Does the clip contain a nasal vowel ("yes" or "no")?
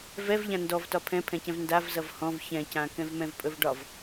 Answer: yes